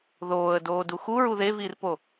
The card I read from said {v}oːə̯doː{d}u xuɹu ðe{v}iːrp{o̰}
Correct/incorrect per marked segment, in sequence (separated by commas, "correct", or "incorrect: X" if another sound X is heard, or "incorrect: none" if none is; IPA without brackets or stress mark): incorrect: ð, correct, correct, incorrect: o